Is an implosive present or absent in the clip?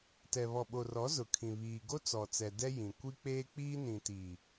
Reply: present